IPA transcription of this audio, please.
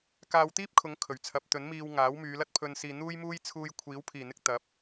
kaː˧wt̪iː˥p̚kʰʊ˨˧ŋ kʰɵ˨˩ɥt͡sʰɐ˨˥p̚t̪ɵ˨˥nmiː˧w ŋaː˨˥wmyː˨˧lɐ˥t̚ pʰɵ˧n siː˨n̪uː˥jmuː˥j t͡sʰuː˧j kʷʰiː˨˥wpʰiː˨˩n̪ɪ˧k̚ t̪ɐ˨˥p̚

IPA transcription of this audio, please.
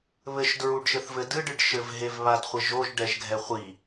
βɘʃdɹuɖʃɘθvɘ dɨɖɨɖ ʃɘvɦevβadχʷɘ ʒoʒɖɛʒɡʱɛ χʷi

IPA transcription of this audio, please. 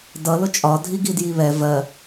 dʌlʊ t͡ʃʼɒ dʱiɡidjiβɛ vɜ

